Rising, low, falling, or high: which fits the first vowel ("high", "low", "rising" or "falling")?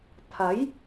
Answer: rising